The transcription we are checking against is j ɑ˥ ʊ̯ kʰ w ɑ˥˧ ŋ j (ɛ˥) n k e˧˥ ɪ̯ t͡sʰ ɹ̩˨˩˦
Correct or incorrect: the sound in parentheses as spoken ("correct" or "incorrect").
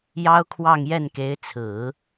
incorrect